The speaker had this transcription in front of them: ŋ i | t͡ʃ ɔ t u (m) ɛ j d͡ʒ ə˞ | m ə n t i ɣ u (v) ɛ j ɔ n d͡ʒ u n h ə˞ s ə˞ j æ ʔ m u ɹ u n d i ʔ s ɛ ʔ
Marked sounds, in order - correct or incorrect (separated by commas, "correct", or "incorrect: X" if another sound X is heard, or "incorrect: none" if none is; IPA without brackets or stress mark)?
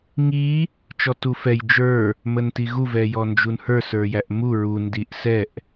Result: incorrect: f, correct